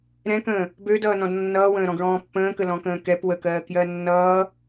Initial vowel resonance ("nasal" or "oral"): nasal